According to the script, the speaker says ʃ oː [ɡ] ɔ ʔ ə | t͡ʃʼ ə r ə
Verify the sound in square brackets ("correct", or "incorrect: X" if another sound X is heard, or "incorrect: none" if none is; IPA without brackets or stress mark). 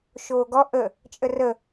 correct